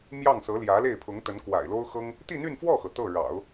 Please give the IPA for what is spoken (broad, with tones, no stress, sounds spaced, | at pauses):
m j ɑ˥˩ ŋ s ɤ˧˥ l j ä˧˥ l e˥˩ ɪ̯ pʰ ʊ˧˥ ŋ t̪ ə˧˥ n k w a̰˨˩ ɪ̯ l o˥ ʊ̯ x ɤ˥ ŋ | t̪ i˥˧ n̪ y˥˧ n f w ɔ˥˩ x ɤ˩ t̪ ɤ˥˩ ɻ ɑ̰˨˩˦ ʊ̯